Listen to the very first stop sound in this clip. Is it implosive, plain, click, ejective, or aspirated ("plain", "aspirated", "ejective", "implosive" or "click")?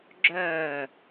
click